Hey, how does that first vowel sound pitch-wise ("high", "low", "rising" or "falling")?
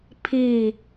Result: falling